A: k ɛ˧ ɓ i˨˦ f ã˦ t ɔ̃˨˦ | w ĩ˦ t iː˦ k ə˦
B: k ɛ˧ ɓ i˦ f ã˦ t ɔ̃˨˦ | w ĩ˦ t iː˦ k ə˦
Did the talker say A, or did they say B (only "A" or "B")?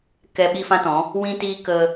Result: B